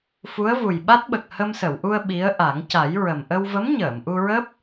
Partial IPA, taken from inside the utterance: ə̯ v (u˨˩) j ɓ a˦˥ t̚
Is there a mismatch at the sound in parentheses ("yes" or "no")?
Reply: no